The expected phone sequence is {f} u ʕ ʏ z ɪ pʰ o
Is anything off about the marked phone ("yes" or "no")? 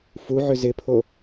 no